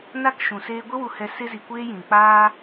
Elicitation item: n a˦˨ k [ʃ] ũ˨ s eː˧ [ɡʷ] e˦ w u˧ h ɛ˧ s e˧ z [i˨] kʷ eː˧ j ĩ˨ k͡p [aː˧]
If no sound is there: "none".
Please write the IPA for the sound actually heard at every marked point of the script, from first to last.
ʃ, ɡʷ, i˨, aː˦

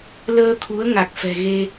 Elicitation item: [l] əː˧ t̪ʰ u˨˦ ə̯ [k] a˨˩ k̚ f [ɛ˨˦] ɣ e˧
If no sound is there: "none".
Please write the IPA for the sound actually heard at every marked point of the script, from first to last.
l, ŋ, ɛ̤˨˩

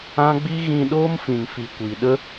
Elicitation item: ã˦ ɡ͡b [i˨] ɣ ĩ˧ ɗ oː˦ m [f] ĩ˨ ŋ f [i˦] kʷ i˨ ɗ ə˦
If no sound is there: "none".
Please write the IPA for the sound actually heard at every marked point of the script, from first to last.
i˦, f, i˨

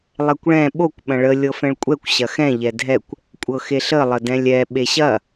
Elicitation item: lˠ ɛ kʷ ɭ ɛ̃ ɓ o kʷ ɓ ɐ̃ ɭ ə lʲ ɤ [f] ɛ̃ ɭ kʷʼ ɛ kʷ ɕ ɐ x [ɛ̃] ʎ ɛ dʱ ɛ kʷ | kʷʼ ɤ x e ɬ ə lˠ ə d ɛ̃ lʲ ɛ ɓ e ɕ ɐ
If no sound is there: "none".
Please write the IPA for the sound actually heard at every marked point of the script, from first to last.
f, ɛ̃

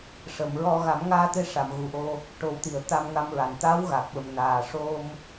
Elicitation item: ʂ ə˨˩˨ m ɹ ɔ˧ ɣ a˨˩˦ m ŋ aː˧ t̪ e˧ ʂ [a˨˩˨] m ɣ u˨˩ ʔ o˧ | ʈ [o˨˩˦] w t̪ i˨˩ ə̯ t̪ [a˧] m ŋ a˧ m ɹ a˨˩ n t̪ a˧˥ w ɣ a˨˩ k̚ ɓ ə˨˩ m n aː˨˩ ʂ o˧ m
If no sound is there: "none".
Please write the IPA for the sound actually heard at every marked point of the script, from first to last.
a˨˩˨, o˨˩˦, a˧

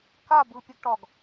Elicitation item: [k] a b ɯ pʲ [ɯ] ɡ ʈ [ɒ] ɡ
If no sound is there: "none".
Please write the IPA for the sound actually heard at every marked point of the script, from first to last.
k, ɯ, ɒ

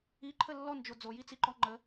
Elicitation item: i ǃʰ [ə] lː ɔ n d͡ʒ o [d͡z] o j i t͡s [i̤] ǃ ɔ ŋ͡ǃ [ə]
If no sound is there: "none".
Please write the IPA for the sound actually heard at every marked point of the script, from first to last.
ə, d͡z, i, ə

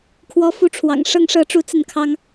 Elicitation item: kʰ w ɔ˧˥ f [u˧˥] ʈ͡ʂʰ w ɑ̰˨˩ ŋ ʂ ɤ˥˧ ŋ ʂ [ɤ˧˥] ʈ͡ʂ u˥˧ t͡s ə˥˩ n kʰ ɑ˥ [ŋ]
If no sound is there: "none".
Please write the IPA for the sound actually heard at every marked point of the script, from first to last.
u˧˥, ɤ˥˧, ŋ

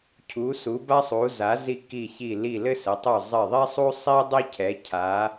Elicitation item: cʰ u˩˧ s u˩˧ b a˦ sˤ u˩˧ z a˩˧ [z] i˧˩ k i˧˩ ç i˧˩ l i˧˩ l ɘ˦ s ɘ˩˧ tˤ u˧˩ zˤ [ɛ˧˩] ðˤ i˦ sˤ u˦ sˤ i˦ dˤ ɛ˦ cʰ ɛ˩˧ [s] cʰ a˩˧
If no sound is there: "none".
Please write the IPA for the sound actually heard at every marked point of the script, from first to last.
z, ɘ˧˩, none

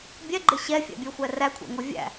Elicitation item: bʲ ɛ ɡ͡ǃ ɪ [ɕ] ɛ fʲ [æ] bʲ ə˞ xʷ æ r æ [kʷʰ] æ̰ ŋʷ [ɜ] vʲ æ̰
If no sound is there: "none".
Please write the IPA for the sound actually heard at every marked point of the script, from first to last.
ɕ, æ̰, kʷʰ, ə˞

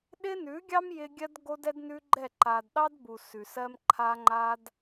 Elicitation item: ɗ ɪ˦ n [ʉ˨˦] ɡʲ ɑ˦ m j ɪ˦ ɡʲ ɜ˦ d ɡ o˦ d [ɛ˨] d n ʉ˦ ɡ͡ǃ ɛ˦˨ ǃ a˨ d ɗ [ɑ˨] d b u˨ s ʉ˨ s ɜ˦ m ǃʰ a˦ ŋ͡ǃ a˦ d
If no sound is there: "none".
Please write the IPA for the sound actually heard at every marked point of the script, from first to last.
ʉ˨˦, ɛ˦, ɑ˦

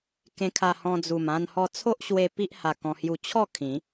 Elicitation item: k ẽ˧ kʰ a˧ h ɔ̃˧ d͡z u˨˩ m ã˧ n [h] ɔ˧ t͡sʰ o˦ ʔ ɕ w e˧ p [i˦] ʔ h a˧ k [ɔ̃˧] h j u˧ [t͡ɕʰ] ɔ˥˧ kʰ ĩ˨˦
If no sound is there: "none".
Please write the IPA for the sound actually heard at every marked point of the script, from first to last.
h, i˦, ɔ̃˧, t͡ɕʰ

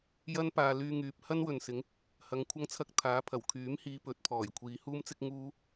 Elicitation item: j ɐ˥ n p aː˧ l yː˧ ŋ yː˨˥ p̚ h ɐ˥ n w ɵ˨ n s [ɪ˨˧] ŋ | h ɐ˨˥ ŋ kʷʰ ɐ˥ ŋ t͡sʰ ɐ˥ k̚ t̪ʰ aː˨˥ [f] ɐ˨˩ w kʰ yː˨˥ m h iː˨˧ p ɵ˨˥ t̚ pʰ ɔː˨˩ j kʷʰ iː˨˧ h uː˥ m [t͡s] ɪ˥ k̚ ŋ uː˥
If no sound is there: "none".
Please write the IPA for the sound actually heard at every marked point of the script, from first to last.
ɪ˨˥, pʰ, t͡s

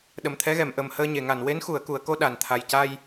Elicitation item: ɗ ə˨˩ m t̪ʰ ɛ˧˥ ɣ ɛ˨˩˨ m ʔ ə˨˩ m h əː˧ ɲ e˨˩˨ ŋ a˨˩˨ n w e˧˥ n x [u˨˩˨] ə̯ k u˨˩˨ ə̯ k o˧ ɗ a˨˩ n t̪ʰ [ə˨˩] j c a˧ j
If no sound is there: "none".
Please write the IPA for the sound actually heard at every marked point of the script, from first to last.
u˨˩˨, a˨˩

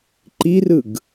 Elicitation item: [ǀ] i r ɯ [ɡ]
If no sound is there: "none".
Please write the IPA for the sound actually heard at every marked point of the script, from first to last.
ǃ, ɡ

